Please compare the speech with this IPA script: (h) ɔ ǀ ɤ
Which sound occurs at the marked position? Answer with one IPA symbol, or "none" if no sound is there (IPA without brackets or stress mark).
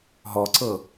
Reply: ɦ